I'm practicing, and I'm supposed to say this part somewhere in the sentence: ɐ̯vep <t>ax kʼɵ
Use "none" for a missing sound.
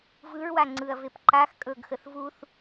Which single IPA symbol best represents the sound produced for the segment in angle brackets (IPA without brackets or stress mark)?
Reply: ǃ